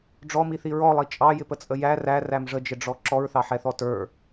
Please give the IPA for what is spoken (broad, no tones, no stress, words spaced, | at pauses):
ɖ͡ʐɔmiθi ɹɔlˠi t͡ʃʼɑjɪpət͡sʼə jæ ræræm ʐəd͡ʒɪɖ͡ʐɔ ǁɔɹθɑħɛθɔ tə˞